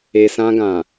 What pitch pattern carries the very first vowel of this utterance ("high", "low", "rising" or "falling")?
low